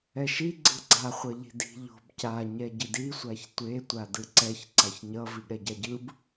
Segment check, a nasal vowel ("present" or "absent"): absent